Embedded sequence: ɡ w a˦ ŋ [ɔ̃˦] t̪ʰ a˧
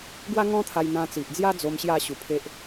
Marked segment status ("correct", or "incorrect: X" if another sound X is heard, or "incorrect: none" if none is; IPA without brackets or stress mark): correct